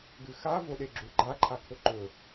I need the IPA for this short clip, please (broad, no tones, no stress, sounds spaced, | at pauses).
ɡ ɨ x a v o ɗ e ɡ͡ǁ u ɡ͡ǃ a ǃʰ a kʰ ɵ ǃ ɵ